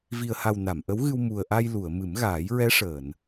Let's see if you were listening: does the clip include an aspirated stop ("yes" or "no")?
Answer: no